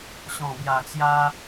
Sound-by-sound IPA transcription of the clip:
ɕ ɔ̃˨˩ b j a˨˩ t͡s j a˧

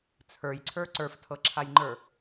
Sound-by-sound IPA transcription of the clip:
t͡sʰ ə˞ j ǀʰ ə˞ ǀ ə˞ f tʰ ɤ ǁʰ a j ŋ͡ǃ ə˞

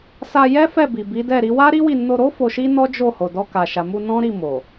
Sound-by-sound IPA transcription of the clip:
s a˧ j ɛ˦ f ɛ˦˨ b i˨ b i˨˦ d ɛ˦˨ ɾ i˨˦ w a˦ ɾ i˦ w i˦˨ n o˧ ɾ o˦ f o˧ ʃ i˦ n ɔ˦ d͡ʒ o˦˨ h o˨ d ɔ˧ k a˨ ʃ a˨ m u˧ n ɔ̃˦ ɾ i˦˨ m o˨

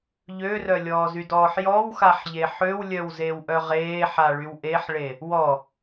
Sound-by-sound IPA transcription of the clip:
ʎ ø r œ lʲ ɔː z y d ɔː ħ j ɔ w x a ħ ʎ e ħ ø w lʲ œ w z e w ʔ œ ʁ eː ħ a ɭ y w ʔ e ħ ɭ e | w ɔ

